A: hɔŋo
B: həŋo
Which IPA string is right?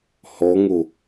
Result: A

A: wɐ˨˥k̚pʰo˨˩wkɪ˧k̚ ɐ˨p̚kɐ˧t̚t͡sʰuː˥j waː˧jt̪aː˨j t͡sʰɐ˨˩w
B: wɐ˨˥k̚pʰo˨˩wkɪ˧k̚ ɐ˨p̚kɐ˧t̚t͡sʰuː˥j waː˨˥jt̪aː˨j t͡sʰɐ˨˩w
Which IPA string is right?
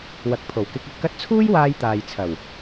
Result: A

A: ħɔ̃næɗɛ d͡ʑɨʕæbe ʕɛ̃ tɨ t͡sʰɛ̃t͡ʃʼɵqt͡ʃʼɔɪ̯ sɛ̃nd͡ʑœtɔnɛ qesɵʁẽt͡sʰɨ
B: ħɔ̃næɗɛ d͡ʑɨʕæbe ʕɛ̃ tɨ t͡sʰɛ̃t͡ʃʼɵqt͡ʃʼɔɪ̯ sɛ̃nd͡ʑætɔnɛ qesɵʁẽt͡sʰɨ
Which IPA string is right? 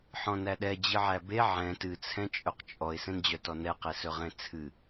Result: A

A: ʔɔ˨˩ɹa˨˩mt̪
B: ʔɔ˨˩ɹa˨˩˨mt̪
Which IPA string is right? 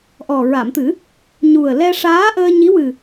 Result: B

